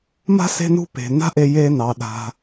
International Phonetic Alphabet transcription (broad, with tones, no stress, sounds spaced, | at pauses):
m a̤˥ s e̤˦ n ṳ˦ p e̤˩ n a̤˦ ʔ e˨ j e˨ n ɑ˩ ɗ a̤˩